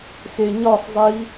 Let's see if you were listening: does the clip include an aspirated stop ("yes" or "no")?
no